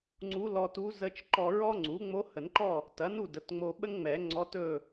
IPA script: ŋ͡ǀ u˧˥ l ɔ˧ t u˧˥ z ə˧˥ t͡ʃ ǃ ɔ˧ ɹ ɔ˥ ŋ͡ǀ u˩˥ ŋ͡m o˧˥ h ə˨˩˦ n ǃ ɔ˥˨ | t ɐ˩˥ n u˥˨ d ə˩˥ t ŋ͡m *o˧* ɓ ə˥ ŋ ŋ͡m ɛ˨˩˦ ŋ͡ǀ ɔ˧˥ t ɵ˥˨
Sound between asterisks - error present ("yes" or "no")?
no